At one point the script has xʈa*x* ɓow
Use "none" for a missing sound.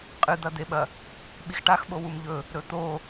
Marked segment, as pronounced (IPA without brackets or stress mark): x